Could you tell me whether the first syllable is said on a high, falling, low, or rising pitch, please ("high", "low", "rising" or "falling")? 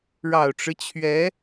low